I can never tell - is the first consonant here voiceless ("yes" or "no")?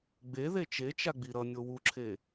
no